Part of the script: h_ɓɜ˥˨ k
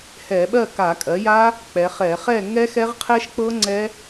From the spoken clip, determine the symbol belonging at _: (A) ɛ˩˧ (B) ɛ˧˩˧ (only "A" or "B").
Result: B